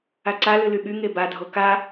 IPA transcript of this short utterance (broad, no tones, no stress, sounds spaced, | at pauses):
a ǀ a l ɨ l y ɓ y ŋ e b a dʱ o k a